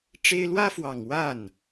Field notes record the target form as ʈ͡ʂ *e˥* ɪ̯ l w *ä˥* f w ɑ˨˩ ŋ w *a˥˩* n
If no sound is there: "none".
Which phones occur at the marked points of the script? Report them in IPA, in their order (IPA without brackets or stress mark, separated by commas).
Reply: e˥, ä˥, a˥˩